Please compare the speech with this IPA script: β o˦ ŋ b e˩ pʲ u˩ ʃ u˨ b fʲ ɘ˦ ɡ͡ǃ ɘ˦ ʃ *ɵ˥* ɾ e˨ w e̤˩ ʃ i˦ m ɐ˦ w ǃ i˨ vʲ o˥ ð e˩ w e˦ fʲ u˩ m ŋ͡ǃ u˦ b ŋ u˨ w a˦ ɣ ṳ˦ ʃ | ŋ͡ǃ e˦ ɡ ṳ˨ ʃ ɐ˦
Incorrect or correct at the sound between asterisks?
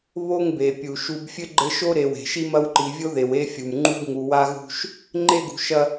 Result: incorrect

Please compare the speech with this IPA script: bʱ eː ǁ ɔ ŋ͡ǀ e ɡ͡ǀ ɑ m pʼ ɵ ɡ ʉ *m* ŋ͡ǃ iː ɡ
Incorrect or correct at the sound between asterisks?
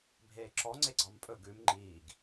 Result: correct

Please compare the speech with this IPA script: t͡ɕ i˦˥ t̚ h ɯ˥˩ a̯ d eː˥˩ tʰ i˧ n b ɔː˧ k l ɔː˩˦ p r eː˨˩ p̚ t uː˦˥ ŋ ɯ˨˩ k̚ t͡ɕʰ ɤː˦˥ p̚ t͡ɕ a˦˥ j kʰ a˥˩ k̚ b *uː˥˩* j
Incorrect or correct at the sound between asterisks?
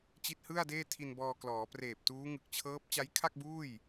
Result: correct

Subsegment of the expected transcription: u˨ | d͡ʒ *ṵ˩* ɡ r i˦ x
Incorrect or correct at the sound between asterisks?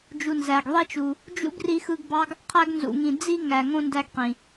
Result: incorrect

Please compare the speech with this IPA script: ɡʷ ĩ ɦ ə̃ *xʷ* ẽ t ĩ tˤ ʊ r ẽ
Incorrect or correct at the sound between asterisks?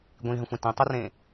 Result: correct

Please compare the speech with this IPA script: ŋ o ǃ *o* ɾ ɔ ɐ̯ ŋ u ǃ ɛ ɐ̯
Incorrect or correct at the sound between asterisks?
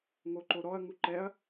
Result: correct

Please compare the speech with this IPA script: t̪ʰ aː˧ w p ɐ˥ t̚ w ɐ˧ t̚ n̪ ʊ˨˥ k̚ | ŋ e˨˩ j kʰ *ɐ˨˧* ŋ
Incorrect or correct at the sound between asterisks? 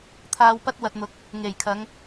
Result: correct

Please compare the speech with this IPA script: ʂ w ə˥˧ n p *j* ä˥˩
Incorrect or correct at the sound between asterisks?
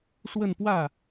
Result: incorrect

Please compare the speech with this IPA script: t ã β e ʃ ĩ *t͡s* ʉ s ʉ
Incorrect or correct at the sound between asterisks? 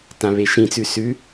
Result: correct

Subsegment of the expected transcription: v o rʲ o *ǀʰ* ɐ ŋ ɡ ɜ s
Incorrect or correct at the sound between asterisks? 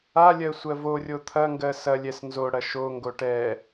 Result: incorrect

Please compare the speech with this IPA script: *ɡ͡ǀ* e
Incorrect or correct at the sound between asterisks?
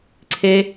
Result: incorrect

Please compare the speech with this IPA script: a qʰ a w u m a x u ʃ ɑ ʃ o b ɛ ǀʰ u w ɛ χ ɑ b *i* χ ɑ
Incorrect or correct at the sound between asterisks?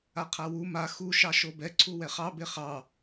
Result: incorrect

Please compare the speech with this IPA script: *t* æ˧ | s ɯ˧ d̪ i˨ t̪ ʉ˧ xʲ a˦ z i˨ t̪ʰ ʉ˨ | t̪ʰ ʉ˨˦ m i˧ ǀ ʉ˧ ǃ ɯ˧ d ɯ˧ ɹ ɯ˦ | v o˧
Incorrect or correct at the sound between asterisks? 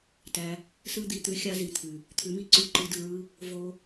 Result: correct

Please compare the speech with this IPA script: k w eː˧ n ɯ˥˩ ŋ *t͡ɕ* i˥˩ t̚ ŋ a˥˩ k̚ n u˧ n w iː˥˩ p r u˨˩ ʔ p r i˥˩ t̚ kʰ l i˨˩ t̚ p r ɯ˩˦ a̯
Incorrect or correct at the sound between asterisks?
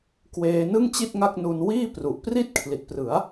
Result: correct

